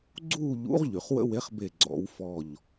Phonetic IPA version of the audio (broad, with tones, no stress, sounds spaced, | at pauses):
ɡ͡ǀ uː˥˨ ʎ ṵ˨˥ ʁ ʎ y˩ χ w ə̰˦ w e˨˥ χ b e˧˩ ɡ͡ǀ ɔ̰˨˩˦ w f ɔ˧˩ ʎ